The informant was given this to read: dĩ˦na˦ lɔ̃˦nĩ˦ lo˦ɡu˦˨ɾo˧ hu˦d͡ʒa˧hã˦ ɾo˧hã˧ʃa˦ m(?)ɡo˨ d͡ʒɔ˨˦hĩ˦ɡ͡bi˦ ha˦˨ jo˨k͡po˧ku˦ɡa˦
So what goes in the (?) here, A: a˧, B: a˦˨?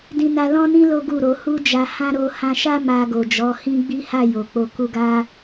A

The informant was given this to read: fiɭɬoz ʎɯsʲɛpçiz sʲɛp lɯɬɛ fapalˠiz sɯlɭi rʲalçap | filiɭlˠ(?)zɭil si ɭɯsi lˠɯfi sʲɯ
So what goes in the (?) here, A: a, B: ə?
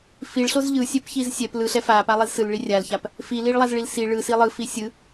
A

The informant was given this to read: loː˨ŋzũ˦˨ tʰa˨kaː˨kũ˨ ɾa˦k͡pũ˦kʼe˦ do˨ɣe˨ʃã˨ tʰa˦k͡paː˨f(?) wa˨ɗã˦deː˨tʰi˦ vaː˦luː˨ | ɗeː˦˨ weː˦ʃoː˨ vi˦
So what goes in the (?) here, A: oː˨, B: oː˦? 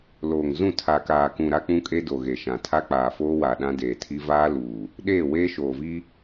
B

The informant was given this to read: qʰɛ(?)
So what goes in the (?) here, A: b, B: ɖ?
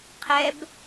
A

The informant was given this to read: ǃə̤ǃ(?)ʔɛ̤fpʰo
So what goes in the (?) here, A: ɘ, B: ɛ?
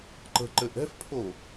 A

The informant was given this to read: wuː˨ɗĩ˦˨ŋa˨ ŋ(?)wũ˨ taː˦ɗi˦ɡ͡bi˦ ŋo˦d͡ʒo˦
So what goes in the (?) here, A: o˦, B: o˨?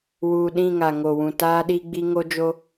B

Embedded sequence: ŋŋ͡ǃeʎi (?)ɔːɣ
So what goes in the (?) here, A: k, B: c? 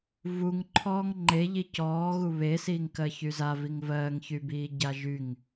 B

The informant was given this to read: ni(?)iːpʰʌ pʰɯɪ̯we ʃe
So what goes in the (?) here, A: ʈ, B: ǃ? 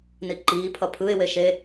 B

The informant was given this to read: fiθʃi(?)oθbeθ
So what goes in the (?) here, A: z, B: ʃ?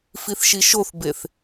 B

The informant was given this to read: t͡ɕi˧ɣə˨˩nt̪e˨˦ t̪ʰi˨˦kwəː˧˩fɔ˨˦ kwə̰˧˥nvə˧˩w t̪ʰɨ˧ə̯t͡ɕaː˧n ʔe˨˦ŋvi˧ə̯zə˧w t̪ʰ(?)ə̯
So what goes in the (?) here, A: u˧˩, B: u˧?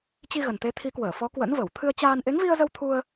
B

